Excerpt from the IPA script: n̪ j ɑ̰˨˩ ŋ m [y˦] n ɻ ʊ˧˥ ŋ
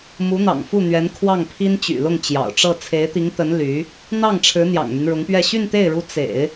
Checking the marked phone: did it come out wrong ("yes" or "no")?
no